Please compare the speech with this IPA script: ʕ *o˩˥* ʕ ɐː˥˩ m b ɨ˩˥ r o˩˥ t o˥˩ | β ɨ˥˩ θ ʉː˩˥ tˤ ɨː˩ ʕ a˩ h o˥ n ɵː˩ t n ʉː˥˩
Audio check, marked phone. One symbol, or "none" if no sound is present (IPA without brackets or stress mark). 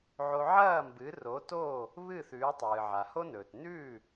o˧